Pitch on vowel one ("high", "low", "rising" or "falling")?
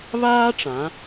high